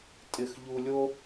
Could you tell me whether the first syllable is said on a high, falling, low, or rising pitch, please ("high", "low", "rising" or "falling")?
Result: falling